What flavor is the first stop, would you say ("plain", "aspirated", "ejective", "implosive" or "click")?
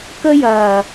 plain